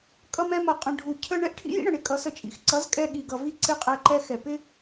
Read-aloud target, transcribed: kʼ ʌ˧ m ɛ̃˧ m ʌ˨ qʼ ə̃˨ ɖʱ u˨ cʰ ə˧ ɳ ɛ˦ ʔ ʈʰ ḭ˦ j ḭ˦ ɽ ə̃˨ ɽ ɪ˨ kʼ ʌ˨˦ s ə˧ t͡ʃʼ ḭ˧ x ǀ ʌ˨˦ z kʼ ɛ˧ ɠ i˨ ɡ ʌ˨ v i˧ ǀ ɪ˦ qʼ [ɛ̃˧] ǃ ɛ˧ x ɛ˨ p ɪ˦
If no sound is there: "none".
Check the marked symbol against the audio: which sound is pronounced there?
ɛ˧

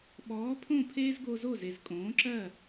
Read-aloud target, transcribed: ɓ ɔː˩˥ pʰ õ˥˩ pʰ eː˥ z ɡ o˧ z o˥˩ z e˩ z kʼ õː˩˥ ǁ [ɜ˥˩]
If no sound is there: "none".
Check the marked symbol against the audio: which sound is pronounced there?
ɜ˥˩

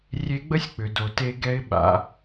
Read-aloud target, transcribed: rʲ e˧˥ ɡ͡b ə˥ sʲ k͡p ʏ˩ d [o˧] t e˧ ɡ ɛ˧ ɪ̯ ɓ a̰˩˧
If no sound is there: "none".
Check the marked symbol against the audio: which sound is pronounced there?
o˩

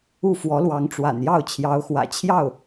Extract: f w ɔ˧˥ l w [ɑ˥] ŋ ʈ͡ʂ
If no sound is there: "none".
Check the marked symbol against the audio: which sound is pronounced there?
ɑ˧˥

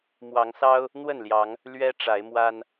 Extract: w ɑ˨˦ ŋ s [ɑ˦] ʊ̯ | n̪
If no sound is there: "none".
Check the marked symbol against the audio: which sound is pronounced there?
ɑ˦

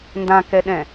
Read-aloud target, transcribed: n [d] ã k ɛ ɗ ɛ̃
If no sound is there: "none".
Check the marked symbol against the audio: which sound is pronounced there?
d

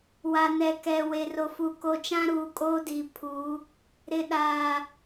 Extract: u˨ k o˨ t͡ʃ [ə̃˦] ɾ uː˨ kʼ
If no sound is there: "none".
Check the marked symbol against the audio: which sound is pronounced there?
ã˦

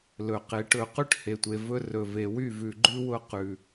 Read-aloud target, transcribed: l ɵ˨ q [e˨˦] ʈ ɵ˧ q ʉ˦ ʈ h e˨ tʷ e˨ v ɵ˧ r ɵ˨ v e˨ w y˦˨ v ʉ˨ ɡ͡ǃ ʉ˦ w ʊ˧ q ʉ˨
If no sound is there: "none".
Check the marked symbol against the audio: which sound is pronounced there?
e˨˦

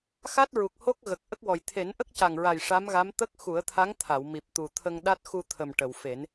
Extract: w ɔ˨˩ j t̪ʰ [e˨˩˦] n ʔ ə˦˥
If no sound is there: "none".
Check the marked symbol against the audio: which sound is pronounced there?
e˨˩˦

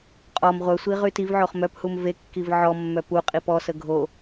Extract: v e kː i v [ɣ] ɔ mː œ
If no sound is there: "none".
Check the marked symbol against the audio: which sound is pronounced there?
ʕ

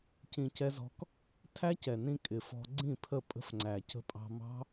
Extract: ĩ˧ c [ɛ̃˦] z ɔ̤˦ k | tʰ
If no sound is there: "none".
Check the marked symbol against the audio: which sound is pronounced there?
ɛ˦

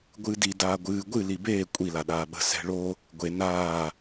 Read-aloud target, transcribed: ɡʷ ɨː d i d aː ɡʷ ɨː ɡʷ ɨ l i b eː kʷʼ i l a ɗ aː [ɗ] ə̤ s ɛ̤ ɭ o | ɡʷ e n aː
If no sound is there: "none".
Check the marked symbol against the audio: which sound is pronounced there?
ɓ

